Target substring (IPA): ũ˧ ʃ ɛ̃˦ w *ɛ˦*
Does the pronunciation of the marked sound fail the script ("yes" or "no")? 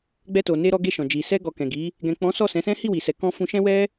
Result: no